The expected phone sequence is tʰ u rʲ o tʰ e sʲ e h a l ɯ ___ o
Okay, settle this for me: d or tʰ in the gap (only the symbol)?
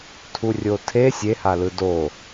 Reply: d